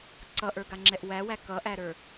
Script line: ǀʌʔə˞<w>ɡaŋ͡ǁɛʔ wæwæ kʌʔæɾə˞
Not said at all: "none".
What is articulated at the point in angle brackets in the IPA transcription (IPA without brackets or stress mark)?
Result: none